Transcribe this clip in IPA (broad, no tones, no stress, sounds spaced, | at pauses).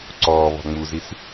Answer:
ǀ ɔː β ɔ̤ ŋ͡m u z i s